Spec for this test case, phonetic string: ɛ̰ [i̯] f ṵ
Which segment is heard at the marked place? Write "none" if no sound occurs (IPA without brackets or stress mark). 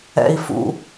i̯